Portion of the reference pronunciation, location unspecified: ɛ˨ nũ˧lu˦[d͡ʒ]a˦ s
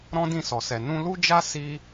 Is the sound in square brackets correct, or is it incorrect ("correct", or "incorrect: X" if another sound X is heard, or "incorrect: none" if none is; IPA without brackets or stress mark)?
correct